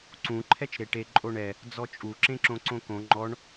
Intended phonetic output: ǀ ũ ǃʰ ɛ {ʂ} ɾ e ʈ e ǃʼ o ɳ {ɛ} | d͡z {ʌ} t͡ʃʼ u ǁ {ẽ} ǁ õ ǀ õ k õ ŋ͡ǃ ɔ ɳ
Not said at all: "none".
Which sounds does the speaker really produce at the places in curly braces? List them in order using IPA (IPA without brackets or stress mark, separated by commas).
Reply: t͡ʃ, ɛ, ɔ, ẽ